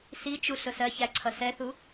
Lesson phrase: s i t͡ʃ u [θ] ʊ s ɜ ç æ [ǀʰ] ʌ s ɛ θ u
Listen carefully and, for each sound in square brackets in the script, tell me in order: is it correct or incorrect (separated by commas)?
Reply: incorrect, correct